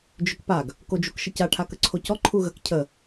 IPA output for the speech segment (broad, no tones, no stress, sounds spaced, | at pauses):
d͡ʒ ʏ k p a ɡ | k o d͡ʒ u k ʃ ə c a ʈʰ a k ə ǀʰ o c ɔ ǃʰ u ɣ ə k cʰ ə